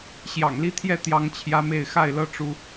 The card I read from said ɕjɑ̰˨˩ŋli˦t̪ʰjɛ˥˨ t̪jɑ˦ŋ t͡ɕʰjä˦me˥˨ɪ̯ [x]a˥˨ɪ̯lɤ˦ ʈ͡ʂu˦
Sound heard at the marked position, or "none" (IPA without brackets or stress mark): x